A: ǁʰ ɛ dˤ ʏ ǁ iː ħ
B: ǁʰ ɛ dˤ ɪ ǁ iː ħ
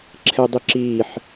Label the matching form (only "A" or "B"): B